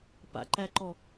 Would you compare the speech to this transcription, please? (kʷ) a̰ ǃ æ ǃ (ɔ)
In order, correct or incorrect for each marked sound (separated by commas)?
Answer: incorrect, correct